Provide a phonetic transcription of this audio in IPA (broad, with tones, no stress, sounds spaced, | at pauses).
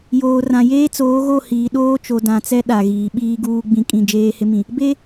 j oː˨ r ã˨ j eː˦ t͡s oː˨˦ ɣ o˦˨ h iː˨ ɗ oː˦ t͡ʃ o˨ d ã˨ t͡s ɛ˦ ɗ a˨ ɣ iː˨ ɓ iː˦ ɡ uː˦ ɡ͡b ĩ˦ kʼ ĩ˦˨ d͡ʒ eː˦ h ɪ˦ m ĩ˨ | b e˦